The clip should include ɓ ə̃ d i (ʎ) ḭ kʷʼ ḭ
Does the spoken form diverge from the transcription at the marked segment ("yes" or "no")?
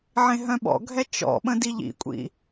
no